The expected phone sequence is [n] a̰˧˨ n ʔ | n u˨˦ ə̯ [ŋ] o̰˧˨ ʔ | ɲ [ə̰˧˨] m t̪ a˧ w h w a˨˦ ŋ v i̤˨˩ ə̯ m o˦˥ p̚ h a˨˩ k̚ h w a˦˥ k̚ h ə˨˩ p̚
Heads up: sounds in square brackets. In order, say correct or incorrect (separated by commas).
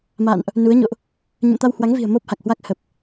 incorrect, incorrect, correct